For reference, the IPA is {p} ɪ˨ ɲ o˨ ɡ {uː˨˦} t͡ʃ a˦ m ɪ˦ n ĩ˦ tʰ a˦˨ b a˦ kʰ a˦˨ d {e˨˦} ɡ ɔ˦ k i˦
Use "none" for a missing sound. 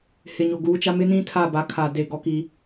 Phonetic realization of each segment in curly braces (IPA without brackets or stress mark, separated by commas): h, uː˨˦, e˦˨